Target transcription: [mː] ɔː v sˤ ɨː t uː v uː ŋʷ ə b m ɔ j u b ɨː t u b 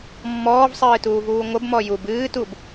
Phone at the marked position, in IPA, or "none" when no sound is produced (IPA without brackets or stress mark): mː